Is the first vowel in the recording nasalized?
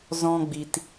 yes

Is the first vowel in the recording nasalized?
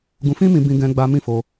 yes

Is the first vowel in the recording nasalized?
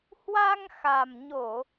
no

